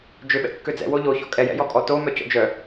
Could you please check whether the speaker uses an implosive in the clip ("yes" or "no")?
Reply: yes